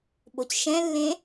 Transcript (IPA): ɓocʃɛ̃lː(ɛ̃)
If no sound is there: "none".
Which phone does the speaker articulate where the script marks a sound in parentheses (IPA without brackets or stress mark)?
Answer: ẽ